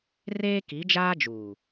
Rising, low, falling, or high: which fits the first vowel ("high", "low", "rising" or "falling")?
high